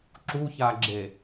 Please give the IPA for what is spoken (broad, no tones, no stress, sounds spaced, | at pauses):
ǁ u ç a ɡ͡ǁ e